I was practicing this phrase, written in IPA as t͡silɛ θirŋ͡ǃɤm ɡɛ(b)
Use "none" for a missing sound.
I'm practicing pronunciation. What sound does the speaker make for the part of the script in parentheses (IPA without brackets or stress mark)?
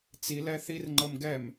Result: m